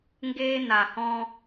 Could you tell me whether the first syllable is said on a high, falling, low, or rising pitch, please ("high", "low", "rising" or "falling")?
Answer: high